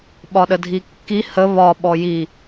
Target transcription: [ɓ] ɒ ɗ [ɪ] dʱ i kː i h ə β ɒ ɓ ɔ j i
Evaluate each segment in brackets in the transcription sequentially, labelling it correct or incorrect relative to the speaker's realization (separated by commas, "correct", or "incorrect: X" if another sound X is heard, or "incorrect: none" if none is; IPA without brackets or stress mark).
correct, incorrect: ə